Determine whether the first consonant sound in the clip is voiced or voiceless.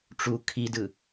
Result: voiceless